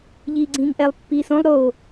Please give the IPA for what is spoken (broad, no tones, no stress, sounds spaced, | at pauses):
ʎ iː ɡ͡ǀ ĩː ŋ ʔ ɛ lˠ pː iː s õ lˠ ɾ oː